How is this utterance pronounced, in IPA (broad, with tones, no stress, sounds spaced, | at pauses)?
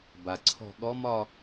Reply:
b a˩ ǀʰ ɔ̤˥˧ ɠ ɔ˧˥ m ɒ˥˧